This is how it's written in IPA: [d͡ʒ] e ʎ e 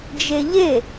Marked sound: correct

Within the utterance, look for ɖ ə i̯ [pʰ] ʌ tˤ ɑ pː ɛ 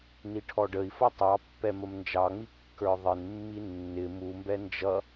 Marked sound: incorrect: f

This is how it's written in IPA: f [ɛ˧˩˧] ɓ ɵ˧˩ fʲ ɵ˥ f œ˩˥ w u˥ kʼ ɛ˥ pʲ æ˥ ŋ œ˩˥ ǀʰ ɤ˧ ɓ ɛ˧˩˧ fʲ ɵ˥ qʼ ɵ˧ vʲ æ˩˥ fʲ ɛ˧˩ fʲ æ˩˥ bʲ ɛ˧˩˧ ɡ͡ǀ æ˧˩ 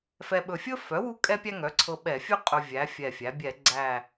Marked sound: incorrect: ɛ˧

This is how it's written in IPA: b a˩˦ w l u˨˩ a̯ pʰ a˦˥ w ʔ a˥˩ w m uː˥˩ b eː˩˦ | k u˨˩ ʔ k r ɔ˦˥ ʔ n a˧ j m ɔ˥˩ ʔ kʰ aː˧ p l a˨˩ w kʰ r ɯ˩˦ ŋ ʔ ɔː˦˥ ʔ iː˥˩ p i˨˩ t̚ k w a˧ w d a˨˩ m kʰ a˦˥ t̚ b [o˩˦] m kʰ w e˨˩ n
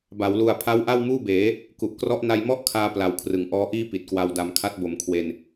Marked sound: correct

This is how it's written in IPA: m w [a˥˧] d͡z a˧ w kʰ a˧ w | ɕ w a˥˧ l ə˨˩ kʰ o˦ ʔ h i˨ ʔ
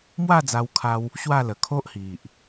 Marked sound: correct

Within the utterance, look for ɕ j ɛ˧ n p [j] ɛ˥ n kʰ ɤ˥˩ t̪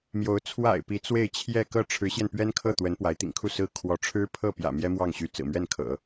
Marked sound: incorrect: ɥ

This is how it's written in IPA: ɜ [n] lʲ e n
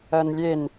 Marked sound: correct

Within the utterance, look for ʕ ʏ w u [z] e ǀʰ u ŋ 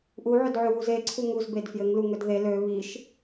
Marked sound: correct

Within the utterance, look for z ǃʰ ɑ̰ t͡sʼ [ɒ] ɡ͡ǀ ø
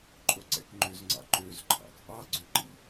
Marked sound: incorrect: ɑ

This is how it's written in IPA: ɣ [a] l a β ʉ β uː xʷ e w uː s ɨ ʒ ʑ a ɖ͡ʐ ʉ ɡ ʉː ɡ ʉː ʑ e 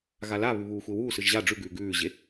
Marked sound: correct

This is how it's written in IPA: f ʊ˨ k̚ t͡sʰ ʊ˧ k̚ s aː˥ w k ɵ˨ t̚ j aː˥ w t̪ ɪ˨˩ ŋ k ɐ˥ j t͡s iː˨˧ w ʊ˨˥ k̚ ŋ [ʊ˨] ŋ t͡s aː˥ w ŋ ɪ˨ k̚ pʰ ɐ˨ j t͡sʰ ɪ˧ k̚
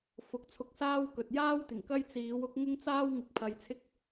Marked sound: incorrect: ʊ˥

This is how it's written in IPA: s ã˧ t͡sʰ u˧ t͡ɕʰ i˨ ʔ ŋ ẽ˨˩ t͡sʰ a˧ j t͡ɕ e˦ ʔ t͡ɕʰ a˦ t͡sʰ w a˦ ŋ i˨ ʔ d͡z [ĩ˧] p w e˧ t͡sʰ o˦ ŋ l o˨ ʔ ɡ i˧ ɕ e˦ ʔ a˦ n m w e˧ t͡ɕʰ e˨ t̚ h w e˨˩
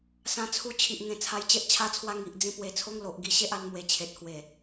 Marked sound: correct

